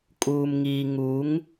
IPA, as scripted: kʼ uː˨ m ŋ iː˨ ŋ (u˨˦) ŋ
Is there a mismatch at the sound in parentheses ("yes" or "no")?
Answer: no